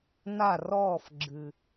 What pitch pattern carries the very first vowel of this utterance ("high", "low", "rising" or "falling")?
falling